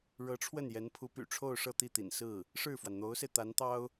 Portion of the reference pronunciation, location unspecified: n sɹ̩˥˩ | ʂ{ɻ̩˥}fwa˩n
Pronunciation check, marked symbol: incorrect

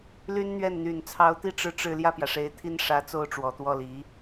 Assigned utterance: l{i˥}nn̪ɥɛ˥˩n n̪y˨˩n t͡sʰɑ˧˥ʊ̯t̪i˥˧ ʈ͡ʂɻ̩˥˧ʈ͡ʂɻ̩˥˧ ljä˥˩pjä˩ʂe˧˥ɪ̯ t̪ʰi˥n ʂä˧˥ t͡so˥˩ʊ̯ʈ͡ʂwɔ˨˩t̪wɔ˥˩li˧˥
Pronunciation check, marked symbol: incorrect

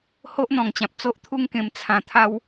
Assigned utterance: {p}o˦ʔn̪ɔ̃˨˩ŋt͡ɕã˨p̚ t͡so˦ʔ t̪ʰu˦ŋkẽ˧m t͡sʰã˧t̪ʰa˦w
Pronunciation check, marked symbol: incorrect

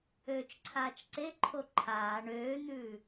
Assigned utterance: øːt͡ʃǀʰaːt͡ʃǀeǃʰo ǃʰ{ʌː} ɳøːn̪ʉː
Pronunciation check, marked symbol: incorrect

